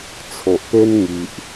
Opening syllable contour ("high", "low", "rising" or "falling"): low